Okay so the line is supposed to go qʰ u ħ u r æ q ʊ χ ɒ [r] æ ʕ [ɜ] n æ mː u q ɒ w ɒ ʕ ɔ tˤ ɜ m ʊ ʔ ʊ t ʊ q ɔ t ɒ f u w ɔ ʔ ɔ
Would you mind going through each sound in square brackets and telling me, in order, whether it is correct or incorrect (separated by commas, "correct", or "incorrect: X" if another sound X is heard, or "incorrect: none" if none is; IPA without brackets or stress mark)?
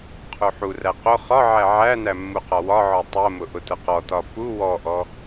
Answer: incorrect: ʕ, incorrect: æ